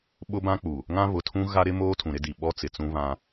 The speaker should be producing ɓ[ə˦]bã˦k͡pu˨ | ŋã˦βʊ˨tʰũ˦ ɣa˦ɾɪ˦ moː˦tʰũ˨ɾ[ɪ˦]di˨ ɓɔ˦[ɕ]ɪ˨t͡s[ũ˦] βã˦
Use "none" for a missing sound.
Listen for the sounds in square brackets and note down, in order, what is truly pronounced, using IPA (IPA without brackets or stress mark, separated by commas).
ʊ˦, ɪ˦, t͡s, ũ˦